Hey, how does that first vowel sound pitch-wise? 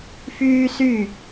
high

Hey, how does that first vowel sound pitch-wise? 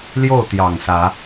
falling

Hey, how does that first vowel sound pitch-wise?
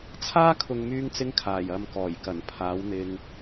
high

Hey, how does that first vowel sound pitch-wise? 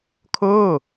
falling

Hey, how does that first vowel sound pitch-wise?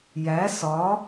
rising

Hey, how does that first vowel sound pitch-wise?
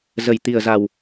low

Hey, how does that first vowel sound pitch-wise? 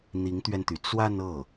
rising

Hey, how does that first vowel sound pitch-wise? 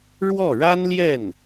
falling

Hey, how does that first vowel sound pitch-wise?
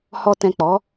low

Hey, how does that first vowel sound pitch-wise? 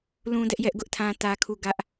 high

